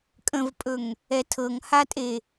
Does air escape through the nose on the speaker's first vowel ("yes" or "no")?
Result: yes